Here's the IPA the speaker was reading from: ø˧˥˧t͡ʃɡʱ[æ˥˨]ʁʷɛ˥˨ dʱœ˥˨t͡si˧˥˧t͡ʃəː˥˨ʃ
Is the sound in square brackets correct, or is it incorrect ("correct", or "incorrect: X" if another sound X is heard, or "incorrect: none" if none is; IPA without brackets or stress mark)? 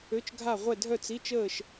incorrect: a˥˨